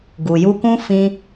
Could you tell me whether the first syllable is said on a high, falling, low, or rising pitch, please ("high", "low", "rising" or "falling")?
low